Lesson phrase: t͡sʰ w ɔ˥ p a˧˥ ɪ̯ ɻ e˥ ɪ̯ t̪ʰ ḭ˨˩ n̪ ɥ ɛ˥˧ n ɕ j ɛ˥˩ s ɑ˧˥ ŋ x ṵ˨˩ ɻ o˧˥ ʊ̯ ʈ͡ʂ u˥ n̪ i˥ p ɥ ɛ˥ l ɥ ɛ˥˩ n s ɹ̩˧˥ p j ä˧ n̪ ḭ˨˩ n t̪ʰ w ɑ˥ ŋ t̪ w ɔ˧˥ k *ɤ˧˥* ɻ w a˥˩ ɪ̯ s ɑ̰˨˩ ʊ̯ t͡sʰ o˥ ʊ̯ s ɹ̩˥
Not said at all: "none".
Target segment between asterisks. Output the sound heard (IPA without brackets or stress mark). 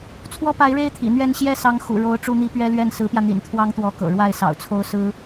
ɤ̰˨˩